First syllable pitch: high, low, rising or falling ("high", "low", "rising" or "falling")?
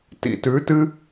low